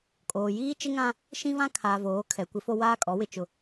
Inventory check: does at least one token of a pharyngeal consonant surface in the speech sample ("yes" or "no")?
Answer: no